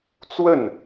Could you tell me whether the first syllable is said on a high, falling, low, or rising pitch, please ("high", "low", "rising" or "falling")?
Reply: falling